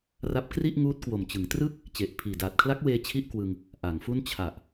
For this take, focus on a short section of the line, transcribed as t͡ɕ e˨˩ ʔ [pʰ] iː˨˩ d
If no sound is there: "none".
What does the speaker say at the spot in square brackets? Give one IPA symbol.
pʰ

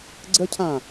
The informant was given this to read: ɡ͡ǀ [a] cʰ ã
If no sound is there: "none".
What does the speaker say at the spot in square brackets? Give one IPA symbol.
ə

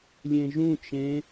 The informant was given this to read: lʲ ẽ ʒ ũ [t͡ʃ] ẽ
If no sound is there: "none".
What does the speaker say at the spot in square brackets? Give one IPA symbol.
t͡ʃ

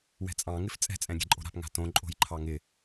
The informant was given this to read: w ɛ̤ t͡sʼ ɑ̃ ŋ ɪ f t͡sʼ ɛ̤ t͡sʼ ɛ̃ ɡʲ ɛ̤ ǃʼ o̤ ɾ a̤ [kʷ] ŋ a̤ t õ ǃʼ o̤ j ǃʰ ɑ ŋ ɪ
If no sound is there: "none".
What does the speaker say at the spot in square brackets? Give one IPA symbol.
p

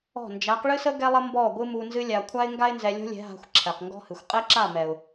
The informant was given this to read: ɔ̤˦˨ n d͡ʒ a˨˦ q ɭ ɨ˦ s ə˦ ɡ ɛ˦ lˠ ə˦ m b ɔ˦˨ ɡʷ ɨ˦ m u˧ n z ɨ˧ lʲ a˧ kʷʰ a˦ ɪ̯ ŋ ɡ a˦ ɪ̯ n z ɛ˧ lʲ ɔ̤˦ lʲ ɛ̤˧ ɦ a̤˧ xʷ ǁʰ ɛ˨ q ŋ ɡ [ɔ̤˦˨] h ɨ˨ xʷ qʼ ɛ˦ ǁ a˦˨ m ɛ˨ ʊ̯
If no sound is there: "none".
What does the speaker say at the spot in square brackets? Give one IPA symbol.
ɔ̤˦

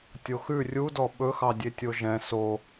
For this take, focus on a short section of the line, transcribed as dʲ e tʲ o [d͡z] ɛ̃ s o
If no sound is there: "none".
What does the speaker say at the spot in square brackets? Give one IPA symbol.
ʒ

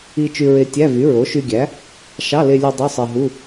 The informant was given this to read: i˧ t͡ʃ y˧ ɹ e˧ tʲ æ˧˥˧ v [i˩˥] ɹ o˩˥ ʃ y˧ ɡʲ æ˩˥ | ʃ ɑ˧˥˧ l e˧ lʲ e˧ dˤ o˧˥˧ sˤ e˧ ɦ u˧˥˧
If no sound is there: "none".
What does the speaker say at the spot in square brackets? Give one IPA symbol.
y˩˥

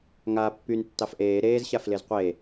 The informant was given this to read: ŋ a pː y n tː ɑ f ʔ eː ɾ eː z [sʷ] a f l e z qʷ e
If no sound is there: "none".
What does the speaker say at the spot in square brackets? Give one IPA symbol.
ɕ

